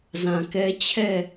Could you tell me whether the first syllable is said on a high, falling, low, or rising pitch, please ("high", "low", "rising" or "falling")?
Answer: low